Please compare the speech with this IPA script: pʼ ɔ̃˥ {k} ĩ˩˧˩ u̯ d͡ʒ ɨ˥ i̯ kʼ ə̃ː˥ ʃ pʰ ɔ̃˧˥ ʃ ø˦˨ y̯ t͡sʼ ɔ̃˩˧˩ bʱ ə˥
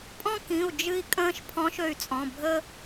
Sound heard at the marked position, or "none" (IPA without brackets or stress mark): k